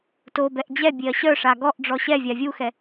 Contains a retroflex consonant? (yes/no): yes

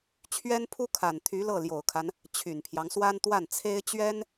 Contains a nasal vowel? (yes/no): no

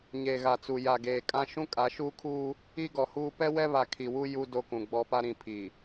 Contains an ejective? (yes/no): yes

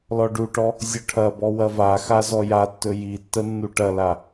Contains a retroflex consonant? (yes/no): yes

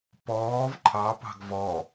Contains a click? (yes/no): yes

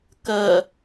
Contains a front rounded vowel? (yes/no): no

